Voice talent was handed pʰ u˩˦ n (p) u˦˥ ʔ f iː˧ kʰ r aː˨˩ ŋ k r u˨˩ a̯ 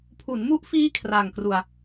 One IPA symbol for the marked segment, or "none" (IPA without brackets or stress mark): m